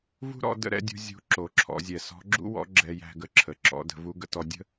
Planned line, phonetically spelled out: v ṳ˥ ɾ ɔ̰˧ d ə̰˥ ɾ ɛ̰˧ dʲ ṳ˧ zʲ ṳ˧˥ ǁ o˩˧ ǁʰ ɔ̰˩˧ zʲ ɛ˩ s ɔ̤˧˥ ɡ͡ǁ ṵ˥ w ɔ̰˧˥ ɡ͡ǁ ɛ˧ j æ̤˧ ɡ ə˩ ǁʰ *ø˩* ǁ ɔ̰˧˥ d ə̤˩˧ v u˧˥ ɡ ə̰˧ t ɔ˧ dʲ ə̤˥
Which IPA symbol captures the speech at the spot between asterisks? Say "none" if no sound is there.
ə˩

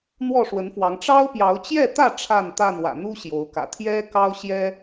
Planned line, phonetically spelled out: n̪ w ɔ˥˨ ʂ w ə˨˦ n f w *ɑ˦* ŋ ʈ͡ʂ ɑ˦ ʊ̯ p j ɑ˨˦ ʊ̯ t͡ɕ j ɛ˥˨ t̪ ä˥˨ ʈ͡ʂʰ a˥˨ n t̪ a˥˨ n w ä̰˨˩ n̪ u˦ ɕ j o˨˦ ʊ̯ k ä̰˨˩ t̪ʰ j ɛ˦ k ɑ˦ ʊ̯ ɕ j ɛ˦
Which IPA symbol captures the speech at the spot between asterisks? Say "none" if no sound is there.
ɑ˨˦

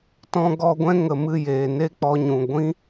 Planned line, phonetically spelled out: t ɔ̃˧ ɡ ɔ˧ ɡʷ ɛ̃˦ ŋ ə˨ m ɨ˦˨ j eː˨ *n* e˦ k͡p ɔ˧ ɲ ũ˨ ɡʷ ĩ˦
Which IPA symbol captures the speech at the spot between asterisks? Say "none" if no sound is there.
n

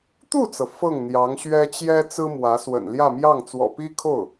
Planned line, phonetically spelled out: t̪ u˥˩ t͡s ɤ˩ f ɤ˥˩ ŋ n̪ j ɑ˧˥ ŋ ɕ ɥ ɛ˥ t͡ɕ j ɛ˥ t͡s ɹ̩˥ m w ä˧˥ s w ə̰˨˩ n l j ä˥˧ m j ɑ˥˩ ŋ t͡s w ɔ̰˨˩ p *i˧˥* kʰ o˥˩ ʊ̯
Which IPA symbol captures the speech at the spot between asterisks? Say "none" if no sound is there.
i˥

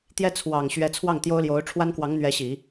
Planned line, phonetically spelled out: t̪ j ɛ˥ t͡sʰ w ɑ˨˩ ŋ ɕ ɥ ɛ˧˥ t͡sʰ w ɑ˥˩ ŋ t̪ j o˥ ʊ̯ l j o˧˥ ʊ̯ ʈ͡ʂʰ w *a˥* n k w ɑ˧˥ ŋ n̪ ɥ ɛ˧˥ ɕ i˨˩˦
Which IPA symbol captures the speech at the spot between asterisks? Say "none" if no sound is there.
a˥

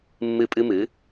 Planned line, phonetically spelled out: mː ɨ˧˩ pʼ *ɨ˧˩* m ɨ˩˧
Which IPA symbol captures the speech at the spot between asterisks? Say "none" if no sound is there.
ɨ˧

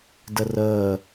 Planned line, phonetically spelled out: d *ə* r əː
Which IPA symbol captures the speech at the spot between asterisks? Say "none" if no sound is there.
ə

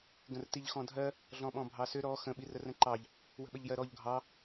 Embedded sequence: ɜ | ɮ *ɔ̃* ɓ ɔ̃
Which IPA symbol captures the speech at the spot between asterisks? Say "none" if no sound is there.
ɔ̃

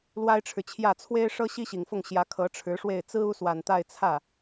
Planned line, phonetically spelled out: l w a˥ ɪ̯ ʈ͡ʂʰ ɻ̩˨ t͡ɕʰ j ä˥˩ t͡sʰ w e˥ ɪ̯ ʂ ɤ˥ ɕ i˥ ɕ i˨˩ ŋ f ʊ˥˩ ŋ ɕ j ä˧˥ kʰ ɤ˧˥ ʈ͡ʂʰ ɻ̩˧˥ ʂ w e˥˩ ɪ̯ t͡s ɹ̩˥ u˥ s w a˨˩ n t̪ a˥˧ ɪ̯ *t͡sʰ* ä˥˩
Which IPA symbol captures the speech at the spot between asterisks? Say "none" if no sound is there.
t͡sʰ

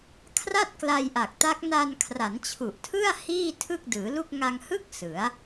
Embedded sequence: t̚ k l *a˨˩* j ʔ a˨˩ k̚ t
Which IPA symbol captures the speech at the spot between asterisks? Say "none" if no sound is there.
a˧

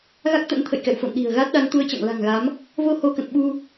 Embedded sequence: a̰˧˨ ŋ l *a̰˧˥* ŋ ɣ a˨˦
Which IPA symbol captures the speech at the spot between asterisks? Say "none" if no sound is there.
a̤˨˩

